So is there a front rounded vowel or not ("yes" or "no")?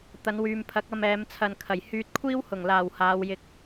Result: yes